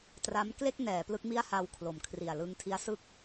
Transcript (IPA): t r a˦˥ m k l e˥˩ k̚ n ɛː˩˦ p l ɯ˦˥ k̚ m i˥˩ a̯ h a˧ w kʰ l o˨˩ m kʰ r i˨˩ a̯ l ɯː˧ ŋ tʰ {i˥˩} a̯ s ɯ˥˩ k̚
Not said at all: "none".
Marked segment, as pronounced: i˦˥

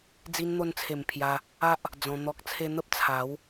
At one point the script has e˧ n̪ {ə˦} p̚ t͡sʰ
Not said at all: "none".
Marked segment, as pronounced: ə˦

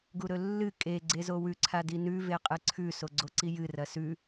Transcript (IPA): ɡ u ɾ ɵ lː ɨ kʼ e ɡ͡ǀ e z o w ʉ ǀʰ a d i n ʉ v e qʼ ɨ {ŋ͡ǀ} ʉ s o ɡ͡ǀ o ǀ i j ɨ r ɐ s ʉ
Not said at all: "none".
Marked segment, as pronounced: ǀʰ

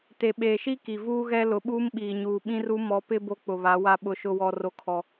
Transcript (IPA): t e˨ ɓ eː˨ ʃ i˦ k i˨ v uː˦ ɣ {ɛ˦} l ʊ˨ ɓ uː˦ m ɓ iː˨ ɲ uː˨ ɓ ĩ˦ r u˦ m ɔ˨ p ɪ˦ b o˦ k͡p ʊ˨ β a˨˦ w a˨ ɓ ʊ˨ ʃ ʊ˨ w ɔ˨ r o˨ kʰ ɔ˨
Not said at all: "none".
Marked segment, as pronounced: ɛ˦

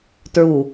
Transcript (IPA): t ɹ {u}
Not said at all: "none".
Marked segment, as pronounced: u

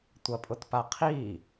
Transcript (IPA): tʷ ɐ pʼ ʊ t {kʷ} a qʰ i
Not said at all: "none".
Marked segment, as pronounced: p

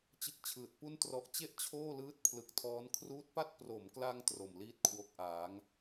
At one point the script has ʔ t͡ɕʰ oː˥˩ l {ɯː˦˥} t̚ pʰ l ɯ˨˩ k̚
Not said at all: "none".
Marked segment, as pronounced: ɯː˦˥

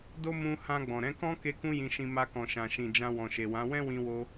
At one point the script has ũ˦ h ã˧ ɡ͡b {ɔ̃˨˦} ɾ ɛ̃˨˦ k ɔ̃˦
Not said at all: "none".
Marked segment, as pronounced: ɔ̃˨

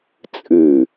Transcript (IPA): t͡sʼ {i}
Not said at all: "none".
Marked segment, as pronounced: ɨ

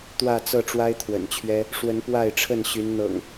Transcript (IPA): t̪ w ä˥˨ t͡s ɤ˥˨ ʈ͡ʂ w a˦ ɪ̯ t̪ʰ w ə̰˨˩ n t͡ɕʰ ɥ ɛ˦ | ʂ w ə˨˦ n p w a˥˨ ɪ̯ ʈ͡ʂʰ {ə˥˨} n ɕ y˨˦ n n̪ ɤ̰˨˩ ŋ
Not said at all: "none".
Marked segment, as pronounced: ə˥˨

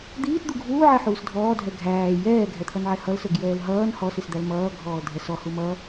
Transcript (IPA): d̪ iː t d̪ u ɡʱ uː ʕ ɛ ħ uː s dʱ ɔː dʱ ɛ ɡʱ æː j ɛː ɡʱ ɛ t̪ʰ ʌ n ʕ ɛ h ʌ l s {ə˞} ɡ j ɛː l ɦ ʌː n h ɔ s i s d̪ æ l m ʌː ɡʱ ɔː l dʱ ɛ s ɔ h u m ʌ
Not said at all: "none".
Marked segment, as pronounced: ə˞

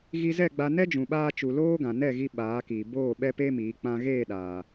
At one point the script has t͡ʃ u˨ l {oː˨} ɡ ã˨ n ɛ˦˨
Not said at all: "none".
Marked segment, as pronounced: oː˦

